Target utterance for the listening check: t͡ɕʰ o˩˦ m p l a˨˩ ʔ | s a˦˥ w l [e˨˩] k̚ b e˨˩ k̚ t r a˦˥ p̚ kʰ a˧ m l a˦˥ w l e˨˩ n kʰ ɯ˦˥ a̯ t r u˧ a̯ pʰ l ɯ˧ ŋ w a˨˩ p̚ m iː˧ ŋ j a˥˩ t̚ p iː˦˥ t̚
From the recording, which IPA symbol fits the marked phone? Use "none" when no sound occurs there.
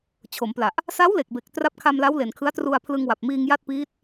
e˨˩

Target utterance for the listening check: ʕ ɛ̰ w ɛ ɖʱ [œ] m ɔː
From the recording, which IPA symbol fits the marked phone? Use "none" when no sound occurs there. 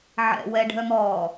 œ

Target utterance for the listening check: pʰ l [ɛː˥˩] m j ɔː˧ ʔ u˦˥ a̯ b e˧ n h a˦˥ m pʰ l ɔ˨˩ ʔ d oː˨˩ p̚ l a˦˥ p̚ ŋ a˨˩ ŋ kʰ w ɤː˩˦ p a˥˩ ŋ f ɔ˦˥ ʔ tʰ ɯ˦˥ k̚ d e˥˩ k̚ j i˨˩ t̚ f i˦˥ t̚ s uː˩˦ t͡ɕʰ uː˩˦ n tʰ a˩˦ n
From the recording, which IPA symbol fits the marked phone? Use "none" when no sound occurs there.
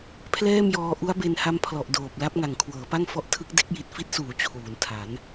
ɛː˥˩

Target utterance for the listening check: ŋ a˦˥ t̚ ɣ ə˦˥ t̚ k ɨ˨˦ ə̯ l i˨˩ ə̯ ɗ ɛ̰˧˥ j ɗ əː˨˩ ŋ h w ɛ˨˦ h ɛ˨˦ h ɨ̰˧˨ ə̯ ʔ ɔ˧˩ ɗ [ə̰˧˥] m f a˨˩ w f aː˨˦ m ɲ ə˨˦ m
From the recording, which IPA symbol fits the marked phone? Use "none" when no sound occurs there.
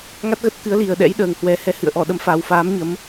ə˨˦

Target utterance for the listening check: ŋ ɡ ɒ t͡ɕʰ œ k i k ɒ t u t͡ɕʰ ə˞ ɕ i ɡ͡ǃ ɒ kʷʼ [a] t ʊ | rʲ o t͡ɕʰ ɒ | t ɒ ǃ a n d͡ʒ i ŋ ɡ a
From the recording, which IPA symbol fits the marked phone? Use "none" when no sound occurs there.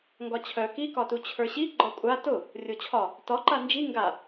a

